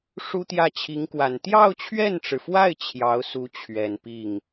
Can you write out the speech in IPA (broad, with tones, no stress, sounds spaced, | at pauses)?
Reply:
ʂ u˥ t̪ j ä˥˩ t͡ɕʰ i˧˥ ŋ k w a˨˩ n t̪ j ɑ˥˧ ʊ̯ t͡ɕʰ ɥ ɛ˥˩ n ʈ͡ʂ ɻ̩˩ f w a˥˩ ɪ̯ t͡ɕʰ j ɑ˧˥ ʊ̯ s u˧˥ t͡ɕʰ ɥ ɛ˨˩ n p i˥˩ ŋ